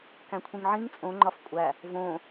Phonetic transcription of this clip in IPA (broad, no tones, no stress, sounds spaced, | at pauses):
k æ̃ kʷʰ ĩ ŋ ʕ ĩ ŋ t͡sʼ õ ŋ͡ǃ ɒ f kʷʼ æ | v õ